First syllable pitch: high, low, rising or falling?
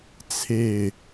falling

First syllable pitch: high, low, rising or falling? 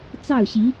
falling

